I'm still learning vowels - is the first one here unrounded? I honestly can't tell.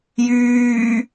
no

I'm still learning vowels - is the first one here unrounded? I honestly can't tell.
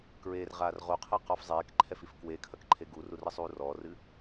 yes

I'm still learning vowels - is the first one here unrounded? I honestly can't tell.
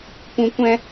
no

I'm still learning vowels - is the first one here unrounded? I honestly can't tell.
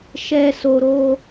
yes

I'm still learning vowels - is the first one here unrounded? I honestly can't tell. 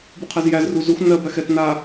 no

